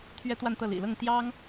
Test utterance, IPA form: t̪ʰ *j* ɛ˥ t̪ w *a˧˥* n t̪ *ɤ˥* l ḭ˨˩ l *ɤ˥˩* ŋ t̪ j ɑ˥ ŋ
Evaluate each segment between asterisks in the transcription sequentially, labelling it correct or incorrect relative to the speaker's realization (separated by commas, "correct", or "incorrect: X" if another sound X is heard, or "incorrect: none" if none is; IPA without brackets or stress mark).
incorrect: ɥ, incorrect: a˥˧, incorrect: ɤ˥˩, correct